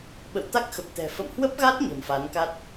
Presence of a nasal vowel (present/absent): absent